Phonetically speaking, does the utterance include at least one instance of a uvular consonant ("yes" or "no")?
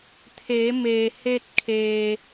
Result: no